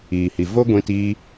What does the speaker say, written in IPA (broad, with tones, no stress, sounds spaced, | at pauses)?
iː˨ h i˨ v o˦ ɡʷ ĩ˧ t iː˧